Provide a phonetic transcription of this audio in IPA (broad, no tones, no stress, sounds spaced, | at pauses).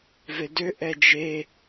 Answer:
v e d ø ʔ ɛ d͡ʒ e